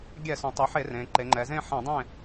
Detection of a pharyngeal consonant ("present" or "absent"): present